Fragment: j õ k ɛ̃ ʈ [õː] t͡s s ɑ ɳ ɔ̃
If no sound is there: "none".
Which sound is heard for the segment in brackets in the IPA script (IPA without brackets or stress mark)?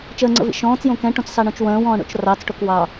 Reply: õ